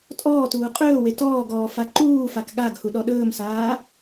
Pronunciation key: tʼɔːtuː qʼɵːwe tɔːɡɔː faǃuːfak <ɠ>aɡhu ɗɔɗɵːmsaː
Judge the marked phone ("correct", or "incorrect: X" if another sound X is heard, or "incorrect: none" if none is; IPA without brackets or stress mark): correct